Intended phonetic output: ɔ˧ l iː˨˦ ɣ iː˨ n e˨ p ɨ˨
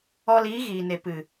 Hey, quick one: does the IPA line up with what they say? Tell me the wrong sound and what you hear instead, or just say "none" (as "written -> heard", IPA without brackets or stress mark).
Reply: none